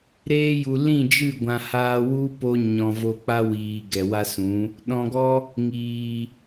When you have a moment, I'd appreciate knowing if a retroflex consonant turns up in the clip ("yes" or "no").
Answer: no